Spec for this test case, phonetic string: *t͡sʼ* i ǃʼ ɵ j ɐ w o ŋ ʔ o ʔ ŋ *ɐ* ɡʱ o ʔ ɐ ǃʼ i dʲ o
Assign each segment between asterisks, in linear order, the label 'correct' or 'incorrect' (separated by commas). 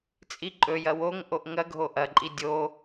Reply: correct, correct